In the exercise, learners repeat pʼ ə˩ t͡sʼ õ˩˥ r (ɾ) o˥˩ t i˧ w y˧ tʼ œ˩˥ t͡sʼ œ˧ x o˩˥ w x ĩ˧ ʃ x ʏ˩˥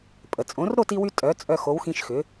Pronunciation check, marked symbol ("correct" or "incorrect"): correct